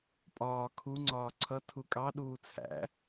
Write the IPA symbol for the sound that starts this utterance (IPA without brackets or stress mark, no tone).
pʼ